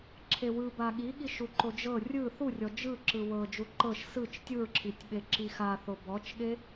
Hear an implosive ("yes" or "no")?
yes